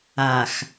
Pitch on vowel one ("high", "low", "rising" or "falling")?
low